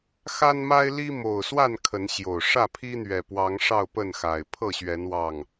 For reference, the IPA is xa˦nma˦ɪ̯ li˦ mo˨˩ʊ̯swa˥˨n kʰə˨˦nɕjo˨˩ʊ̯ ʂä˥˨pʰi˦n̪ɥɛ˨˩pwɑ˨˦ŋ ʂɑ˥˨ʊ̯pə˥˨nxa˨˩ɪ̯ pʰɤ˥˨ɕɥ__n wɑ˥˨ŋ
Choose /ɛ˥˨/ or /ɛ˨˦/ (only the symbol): ɛ˨˦